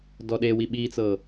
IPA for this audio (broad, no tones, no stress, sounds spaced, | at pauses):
d ɔ ɗ e w i ɓ i t͡s ɤ